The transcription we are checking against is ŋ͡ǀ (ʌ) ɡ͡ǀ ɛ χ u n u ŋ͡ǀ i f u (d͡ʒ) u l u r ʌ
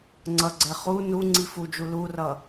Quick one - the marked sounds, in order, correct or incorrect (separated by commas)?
correct, correct